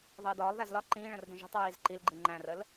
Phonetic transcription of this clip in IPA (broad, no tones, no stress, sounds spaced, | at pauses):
ðˤ əː d ɒː lˠ ð æ z l ɒ ǃ ĩː ɭ ə̃ r d ə̃ ʒ i̤ tˤ ɹ iː z ǃ i l ɡ͡ǃ i ŋ͡ǃ æ̃ r ə l